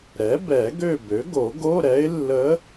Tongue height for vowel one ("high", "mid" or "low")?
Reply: mid